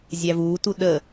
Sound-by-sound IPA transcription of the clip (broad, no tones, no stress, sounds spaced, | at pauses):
zʲ æ v uː t u ɗ ə